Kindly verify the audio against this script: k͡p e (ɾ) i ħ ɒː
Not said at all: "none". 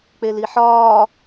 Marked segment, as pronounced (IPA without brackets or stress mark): l